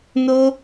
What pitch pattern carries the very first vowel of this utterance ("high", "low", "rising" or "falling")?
high